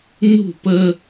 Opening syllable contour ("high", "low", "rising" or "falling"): falling